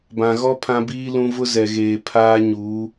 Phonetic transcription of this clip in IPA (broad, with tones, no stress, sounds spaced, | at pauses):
b ã˨ ɣ ɔ˦ pʰ ã˦ b iː˦ l ũ˦ v ʊ˦ z ɛ˨ ɣ eː˨ pʰ aː˦ ɲ uː˨˦